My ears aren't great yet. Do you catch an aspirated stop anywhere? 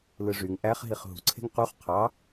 yes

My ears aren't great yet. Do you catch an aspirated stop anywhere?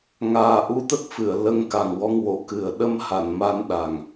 no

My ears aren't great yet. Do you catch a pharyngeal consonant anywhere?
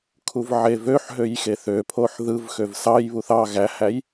yes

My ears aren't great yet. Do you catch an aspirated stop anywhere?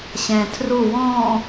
yes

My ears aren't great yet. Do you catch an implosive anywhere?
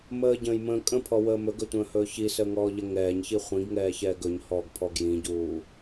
no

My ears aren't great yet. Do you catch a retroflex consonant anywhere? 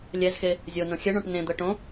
yes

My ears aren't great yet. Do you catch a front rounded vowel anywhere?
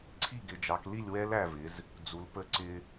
no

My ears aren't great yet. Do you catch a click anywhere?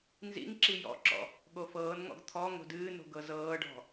yes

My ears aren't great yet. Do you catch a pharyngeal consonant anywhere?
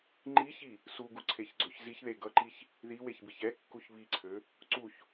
no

